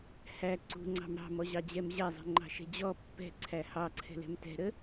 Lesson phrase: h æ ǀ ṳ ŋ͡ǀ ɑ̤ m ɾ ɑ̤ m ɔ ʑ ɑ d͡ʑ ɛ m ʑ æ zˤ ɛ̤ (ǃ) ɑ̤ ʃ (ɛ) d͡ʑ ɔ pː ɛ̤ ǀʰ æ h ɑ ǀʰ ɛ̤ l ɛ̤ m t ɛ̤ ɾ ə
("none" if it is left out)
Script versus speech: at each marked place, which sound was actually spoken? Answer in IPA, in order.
ŋ͡ǃ, ɛ̤

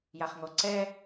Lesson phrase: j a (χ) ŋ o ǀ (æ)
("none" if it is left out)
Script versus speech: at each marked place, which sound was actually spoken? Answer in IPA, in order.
χ, ɛ

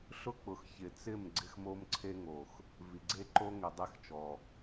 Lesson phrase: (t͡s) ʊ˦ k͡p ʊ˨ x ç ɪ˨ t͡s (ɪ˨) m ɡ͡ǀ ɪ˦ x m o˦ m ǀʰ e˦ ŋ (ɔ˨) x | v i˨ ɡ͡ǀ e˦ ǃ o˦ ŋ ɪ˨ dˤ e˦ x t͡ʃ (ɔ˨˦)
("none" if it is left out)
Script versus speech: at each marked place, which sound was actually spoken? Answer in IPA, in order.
ɬ, ɪ˦˨, o˨, ɔ˨

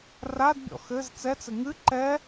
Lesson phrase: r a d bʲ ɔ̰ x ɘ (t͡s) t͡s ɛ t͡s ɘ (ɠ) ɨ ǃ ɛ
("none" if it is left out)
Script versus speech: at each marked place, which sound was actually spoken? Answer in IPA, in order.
z, ŋ

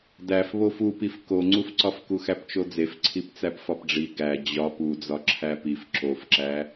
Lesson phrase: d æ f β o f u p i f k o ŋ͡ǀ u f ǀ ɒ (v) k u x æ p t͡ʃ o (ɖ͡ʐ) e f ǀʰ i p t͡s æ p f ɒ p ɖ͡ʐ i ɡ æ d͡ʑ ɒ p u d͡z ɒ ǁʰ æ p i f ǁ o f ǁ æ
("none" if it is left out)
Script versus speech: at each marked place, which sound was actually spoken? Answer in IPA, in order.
f, d͡z

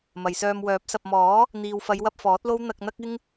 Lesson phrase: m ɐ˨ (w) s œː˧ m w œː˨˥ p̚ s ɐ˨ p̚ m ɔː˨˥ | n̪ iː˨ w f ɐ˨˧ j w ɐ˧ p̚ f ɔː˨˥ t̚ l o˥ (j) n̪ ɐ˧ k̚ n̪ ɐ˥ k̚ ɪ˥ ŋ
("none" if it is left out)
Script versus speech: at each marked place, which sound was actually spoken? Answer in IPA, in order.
j, w

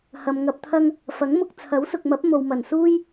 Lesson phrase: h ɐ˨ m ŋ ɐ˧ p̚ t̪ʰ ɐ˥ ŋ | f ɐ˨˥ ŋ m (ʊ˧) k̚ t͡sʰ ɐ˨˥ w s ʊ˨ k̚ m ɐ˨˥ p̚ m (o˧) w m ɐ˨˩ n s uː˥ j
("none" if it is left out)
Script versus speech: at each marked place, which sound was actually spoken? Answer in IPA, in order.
ʊ˧, o˨

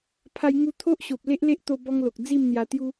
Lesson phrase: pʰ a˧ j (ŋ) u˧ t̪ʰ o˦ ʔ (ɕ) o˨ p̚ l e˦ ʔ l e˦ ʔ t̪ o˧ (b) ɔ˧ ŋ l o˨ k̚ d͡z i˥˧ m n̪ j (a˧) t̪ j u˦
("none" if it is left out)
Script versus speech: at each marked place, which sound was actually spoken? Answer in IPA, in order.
ŋ, ɕ, b, a˧

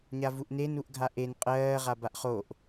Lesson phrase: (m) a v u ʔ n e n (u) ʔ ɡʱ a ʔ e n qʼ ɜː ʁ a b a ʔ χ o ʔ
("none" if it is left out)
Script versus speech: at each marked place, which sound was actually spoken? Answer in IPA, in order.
ɲ, u

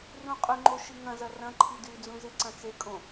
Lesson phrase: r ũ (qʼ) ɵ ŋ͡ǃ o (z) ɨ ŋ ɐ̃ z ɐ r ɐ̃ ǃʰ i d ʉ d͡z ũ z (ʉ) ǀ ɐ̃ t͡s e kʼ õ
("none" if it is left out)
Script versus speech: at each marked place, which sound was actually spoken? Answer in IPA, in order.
qʼ, ʃ, ɨ

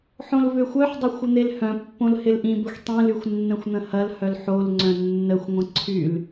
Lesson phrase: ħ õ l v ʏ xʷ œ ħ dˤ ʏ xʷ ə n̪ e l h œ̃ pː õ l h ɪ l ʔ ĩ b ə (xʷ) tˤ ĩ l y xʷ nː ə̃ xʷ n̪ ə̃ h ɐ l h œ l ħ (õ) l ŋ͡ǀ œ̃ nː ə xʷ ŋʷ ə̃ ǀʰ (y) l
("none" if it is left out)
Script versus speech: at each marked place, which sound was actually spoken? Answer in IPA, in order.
xʷ, o, y

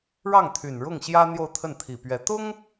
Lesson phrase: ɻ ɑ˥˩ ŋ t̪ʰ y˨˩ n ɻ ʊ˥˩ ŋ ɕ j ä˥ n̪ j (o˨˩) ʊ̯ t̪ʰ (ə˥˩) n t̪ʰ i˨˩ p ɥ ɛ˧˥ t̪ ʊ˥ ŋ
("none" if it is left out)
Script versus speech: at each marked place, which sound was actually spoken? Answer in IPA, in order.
o˥˧, ə˥˩

